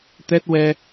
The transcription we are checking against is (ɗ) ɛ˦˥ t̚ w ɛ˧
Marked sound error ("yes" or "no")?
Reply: yes